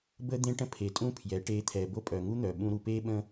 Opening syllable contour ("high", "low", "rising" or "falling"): high